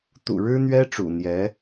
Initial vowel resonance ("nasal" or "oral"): oral